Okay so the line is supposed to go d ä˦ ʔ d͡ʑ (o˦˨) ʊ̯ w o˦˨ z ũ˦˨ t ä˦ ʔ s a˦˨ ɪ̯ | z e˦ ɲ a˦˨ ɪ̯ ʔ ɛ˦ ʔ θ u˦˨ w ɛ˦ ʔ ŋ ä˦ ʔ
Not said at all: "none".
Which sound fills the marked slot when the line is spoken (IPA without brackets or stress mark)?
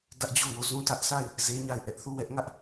o˦˨